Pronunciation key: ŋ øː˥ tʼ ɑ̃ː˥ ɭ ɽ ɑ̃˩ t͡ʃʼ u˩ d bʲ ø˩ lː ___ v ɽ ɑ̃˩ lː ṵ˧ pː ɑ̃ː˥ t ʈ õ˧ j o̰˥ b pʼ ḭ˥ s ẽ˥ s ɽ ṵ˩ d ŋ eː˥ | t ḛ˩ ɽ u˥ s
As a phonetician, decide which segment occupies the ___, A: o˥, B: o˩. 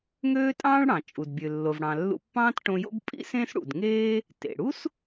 B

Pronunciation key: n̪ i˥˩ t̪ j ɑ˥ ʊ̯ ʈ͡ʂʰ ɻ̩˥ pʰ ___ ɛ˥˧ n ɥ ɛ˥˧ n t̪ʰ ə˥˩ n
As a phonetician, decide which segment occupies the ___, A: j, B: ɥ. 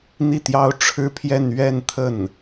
A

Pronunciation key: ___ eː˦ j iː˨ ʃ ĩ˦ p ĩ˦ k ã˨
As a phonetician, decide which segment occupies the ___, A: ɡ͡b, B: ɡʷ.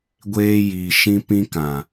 B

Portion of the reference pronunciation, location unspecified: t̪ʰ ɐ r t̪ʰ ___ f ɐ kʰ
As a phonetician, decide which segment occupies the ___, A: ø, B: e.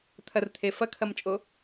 B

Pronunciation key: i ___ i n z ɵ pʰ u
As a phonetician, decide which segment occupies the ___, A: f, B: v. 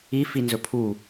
A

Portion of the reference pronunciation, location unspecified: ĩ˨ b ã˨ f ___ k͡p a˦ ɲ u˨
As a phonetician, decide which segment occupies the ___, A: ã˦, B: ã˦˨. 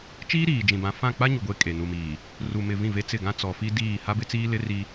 B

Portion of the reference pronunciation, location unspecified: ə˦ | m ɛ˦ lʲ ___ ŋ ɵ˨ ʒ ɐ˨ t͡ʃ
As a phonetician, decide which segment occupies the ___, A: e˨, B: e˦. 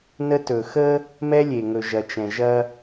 A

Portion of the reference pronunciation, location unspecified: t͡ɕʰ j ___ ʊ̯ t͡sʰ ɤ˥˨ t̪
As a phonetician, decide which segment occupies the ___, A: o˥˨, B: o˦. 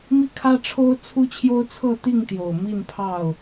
B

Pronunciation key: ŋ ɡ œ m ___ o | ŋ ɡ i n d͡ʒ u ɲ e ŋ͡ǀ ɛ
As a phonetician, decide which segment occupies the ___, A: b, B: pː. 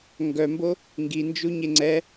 A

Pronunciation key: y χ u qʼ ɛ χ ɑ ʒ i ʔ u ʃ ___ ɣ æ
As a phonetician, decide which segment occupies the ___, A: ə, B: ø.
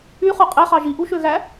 B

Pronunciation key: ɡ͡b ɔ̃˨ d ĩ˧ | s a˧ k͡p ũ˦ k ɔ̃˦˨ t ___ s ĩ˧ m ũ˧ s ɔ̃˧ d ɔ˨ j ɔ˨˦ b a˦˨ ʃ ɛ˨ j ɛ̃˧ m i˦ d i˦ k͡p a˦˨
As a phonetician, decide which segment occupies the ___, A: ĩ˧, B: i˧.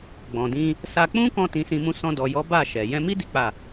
A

